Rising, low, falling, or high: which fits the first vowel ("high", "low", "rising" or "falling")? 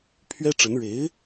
high